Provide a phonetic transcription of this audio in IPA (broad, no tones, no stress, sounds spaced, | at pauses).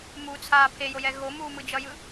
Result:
m u t͡sʰ aː pʰ e j o j ɛ ɣ o m uː m ɯ d͡ʒ ʌ j ɯ